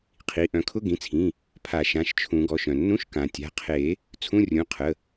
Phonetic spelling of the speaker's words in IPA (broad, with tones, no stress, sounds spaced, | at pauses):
qʰ i˩˧˩ ʔ œ̃˨˩˦ kʰ ʊ˧˥˧ ɡ ĩ˩˧˩ t͡sʰ ĩ˩˧˩ | pʰ a˨˩˦ ʃ ã˩˧˩ ʃ t͡ʃʰ ũ˨˩˦ ɡ ɔ˩˧˩ ʃ œ̃˩ nː ũ˧˥˧ ʃ k ã˩ tʲ a̤˩˧˩ qʰ e˨˩˦ | t͡sʰ ũ˧˥˧ rʲ ũ˩˧˩ qʰ ə˩˧˩